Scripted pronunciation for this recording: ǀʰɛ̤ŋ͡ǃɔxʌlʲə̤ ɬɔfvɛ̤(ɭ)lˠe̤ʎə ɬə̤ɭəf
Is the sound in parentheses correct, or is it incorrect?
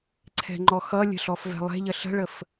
incorrect